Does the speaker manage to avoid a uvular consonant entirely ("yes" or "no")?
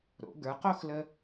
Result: no